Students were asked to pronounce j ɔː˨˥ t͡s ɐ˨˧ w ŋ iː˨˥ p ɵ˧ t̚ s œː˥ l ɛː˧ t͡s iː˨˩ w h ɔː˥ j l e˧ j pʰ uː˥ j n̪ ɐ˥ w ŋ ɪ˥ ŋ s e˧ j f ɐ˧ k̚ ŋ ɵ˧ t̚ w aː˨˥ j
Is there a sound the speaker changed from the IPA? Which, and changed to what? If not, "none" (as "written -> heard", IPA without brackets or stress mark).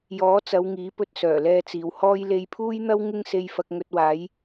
œː˥ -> œː˨˩